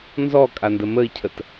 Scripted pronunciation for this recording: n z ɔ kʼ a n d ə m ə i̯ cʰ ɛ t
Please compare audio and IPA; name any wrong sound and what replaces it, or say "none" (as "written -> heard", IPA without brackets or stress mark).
ɛ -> ə